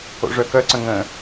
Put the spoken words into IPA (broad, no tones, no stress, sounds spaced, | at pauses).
o̰ ʐ œ k œ ǀ ə̃ ŋ ə̃